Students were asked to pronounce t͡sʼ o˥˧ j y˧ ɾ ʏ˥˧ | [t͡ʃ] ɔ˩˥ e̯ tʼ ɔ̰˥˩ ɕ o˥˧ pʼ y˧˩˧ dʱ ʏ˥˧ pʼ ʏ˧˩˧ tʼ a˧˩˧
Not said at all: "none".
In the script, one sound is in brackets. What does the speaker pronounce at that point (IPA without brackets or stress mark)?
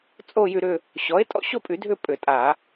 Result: ɕ